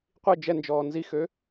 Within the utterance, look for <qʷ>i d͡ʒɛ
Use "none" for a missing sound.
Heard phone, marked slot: qʷ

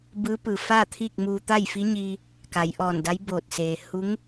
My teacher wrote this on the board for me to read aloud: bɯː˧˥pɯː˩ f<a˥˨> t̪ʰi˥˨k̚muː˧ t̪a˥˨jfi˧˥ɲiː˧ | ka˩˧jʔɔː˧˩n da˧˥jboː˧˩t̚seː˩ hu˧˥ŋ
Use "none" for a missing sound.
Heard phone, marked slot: aː˥˨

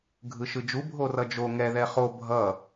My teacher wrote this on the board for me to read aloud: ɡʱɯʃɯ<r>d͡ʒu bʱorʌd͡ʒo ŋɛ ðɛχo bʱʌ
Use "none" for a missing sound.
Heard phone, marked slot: none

